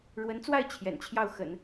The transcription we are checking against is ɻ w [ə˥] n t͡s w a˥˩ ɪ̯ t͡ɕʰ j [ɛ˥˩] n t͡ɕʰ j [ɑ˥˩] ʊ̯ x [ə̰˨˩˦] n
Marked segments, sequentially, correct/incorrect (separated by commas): incorrect, incorrect, correct, correct